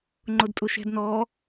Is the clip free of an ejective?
no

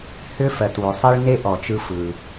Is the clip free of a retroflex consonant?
no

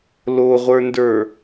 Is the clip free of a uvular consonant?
no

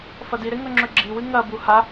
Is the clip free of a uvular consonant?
yes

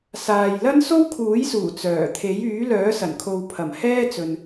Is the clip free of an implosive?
yes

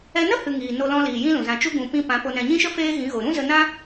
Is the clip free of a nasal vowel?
no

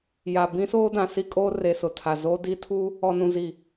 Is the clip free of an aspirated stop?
no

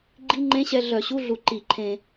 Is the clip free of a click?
no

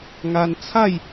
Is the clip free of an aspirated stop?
no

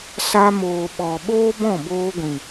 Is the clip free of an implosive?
no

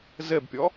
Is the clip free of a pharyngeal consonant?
yes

